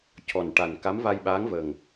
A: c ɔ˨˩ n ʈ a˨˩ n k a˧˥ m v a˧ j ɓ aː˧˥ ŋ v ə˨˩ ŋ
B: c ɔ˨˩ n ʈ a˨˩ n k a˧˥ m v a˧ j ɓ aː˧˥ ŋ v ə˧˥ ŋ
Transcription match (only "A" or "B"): A